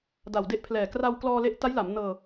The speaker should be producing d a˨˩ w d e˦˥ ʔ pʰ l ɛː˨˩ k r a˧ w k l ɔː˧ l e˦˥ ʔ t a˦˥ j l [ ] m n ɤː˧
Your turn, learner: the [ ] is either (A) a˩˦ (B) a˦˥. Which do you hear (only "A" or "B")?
A